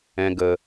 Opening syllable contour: low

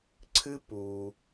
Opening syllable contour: high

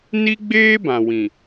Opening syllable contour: high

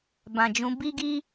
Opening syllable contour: low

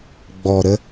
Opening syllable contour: low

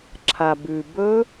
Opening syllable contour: low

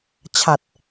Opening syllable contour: low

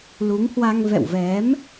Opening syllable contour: rising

